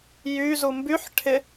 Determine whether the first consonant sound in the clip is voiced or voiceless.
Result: voiced